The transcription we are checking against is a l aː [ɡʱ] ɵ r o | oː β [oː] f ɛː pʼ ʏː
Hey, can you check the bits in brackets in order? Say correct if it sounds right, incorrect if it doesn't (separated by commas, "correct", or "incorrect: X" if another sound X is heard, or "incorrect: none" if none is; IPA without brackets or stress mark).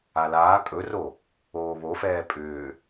incorrect: kʼ, incorrect: o